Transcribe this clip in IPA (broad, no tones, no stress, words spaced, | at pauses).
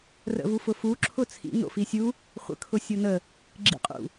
rə̰vufʊfu ǁʰʊt͡sʰḭ no̰fisʲu | χʷə̰ kʰʊsʲonə | ɡ͡ǁḭqʼṵ